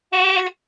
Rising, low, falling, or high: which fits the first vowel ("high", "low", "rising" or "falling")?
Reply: high